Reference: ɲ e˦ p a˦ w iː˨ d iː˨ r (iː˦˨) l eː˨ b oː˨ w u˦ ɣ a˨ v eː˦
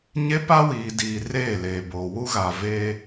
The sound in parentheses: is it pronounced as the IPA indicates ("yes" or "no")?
no